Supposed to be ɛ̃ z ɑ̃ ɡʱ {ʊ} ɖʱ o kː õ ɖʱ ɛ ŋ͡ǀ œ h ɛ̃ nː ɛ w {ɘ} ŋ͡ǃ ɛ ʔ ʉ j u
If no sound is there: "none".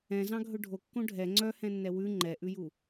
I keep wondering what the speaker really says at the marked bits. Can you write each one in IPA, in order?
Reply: ɵ, ʉ

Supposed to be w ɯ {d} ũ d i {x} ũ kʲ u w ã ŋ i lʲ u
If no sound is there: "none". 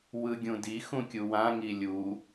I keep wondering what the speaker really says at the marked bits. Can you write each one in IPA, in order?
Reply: ɡʲ, x

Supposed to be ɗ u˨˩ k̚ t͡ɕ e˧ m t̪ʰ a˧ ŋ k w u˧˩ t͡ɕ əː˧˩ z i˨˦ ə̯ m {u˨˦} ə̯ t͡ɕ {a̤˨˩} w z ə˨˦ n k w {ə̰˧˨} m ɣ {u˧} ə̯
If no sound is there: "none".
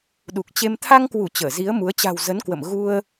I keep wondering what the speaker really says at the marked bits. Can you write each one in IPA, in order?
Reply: u˨˦, a̤˨˩, ə̰˧˨, u˧

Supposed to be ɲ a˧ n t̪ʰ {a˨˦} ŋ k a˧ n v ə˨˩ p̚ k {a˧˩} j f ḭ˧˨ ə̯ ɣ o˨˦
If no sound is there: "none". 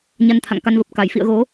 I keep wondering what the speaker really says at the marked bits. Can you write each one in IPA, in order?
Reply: a̰˧˨, a˧˩

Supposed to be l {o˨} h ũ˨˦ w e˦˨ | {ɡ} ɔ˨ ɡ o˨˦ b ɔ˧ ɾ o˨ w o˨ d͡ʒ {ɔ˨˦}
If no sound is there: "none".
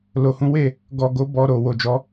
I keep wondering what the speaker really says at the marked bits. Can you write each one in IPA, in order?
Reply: o˨, ɡ, ɔ˨˦

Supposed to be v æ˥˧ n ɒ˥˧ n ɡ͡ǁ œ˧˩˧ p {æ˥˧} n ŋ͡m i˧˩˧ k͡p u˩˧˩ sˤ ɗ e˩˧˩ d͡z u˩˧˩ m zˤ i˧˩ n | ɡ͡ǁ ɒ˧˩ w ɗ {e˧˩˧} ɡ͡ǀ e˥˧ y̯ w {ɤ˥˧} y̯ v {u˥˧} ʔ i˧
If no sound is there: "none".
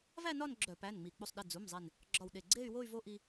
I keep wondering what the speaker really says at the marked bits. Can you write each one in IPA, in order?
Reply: æ˩˧˩, e˧˩, o˥˧, o˥˧

